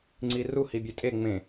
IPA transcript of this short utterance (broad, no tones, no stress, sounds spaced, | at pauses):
ŋ͡ǀ i r u h i bʲ e tʼ e ŋ͡m ẽ